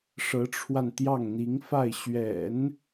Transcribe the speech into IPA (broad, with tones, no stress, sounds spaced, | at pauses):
ʂ ɤ˧˥ ʈ͡ʂʰ w a˧ n t̪ j ɑ˥˩ ŋ n̪ i˧˥ ŋ f a˥˩ ɪ̯ ɕ ɥ ɛ̰˨˩˦ n